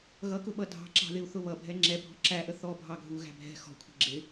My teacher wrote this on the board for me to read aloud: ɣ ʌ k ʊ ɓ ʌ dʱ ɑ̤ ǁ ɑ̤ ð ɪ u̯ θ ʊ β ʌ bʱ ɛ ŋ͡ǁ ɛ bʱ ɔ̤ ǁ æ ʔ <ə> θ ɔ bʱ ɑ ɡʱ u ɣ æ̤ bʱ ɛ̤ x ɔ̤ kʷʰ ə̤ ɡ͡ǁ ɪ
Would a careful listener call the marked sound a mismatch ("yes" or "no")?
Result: no